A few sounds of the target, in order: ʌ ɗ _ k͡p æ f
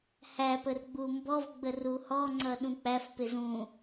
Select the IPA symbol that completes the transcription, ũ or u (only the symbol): ũ